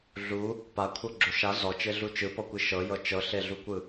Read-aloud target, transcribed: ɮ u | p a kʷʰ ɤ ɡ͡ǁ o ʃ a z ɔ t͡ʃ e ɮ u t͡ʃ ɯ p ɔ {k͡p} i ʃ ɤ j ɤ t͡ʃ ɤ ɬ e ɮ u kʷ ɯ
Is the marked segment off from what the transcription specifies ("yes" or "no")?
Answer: yes